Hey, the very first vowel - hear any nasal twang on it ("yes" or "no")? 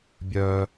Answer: no